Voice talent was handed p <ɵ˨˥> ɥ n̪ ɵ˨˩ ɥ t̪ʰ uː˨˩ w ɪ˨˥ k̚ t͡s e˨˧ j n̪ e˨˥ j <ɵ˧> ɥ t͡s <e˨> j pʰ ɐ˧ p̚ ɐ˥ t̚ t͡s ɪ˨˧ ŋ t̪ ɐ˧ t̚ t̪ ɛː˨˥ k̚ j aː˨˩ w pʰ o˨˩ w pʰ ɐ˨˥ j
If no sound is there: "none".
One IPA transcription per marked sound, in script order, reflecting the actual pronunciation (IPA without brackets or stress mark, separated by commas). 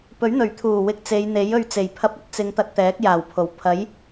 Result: ɵ˨˥, ɵ˧, e˨˩